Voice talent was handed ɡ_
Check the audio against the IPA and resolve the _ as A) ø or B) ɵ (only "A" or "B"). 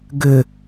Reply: A